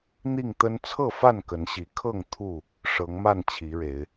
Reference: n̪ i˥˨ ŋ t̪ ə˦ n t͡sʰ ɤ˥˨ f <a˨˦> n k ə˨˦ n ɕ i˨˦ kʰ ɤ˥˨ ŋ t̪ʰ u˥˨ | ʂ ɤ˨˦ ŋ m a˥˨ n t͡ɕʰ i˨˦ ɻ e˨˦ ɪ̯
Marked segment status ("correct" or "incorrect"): incorrect